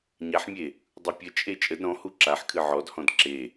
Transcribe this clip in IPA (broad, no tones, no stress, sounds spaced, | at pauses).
ɲ a ħ mʲ e | dˤ u pʲ ə t͡ʃʼ e t͡ʃʼ ə d ɾ ɔ̃ h u ǁ a ħ kʰ ɨ ʕ ɔ d h ɔ̃ d ǁ e